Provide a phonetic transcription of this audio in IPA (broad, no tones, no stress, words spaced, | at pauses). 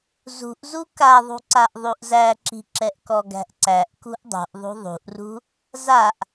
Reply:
zṳʔzu kaðˤṳǀaʔ ðˤuʔzæǁi̤ ǁɛʔkɔɡæ̤ʔǀæʔ kṳʔdˤṳʔ ðˤṳðˤṳʔrṳ | zaʔ